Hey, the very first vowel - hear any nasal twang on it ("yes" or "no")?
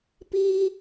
no